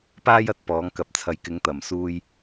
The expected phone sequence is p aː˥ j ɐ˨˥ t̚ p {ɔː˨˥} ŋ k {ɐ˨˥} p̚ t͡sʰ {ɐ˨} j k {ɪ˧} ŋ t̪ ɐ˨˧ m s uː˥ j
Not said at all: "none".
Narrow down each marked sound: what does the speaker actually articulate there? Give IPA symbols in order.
ɔː˨˥, ɐ˨, ɐ˨, ɪ˨˥

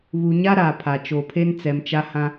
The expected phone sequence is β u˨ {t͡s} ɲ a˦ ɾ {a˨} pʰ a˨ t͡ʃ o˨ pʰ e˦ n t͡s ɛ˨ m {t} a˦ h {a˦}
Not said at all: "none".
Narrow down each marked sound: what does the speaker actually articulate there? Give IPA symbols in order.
none, a˨, t͡ʃ, ã˦

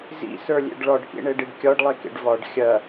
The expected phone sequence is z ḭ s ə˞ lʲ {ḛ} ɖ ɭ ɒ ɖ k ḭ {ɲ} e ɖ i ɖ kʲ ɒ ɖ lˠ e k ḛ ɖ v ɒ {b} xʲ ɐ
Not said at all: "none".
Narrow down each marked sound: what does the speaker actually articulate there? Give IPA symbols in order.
ḛ, ɳ, ɖ

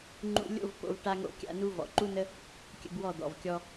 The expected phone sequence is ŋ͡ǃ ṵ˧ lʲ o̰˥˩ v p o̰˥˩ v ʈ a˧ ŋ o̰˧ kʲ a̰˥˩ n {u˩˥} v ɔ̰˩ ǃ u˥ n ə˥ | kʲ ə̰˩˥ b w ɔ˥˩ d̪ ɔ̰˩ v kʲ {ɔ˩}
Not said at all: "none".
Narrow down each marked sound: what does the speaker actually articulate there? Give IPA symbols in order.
u˧, ɔ˧

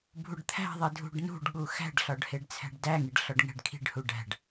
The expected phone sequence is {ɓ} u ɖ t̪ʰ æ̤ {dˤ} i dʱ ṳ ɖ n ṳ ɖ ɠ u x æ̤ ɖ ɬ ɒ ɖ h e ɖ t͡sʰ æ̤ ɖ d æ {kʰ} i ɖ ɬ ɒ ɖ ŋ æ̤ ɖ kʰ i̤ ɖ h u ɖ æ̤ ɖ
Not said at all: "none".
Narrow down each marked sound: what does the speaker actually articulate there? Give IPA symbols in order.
bʱ, ðˤ, ŋ

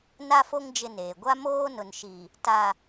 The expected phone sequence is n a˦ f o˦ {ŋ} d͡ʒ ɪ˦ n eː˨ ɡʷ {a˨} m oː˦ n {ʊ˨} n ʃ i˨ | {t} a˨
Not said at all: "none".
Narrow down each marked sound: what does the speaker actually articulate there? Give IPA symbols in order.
ŋ, a˦, ʊ˨, t

